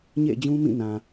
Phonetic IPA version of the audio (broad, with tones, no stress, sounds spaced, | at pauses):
ɲ ḛ˦˨ ɪ̯ d͡ʑ ũ˦ m ĩ˦˨ n ã˨